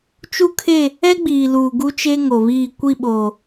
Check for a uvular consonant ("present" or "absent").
absent